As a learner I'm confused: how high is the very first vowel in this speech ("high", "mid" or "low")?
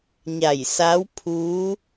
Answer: low